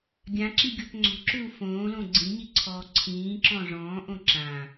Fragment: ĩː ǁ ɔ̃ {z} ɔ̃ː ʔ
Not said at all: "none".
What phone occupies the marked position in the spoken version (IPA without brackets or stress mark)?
ʐ